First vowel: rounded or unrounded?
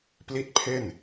unrounded